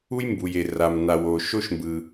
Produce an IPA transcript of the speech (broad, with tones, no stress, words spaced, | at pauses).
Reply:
u˥jmbuː˩je˩ ra˩mna˩wo˩ ʃo˥ʃmbɯː˩